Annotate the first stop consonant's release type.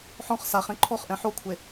click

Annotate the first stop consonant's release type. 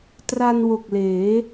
plain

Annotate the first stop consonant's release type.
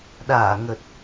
implosive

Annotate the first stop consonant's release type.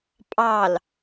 ejective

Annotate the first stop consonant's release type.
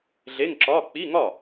click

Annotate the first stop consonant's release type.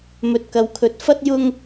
plain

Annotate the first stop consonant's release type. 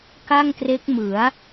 plain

